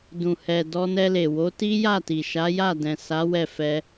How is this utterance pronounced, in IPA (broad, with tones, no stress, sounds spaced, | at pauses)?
d ũ˨ h ɛ˨ d ɔ˧ n ɛ˧ l e˨ w o˨˦ t i˦ j a˦˨ t i˨ ʃ a˨˦ j a˦˨ d ɛ̃˨ s a˨˦ w ɛ˦˨ f ɛ˧